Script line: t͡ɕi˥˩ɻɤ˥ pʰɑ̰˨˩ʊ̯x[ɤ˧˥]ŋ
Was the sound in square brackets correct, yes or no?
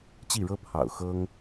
no